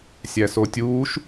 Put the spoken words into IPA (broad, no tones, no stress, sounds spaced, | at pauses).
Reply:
sʲ æ s o tʲ uː ʃ